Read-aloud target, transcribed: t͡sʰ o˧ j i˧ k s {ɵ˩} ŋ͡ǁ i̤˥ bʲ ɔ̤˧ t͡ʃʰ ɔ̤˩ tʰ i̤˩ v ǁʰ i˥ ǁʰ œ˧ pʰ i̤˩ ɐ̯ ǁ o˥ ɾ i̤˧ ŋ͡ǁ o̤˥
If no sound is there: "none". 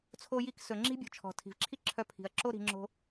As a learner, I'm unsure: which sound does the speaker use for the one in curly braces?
ɵ˩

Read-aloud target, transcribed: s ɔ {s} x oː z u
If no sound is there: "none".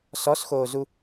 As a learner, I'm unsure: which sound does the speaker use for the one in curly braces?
s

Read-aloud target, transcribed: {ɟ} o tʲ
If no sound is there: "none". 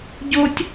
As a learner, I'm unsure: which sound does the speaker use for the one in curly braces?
ɟ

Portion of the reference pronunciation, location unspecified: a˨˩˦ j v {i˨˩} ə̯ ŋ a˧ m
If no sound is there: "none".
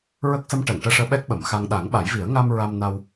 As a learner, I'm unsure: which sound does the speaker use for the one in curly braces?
i˨˩˦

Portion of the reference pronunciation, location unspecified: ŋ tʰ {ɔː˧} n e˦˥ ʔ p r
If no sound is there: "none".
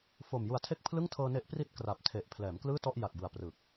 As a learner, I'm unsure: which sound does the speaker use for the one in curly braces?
ɤː˧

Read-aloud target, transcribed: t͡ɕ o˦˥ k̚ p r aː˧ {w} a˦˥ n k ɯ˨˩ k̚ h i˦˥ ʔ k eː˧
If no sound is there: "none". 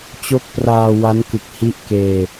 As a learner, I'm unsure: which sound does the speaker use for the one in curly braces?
w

